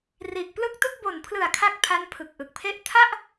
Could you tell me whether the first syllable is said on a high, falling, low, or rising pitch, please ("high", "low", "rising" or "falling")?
low